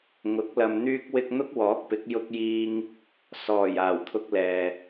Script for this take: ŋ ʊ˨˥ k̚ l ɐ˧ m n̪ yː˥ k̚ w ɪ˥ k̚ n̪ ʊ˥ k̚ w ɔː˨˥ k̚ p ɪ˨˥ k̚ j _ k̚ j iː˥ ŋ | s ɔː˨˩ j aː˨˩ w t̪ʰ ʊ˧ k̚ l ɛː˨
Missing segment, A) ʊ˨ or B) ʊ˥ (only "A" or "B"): B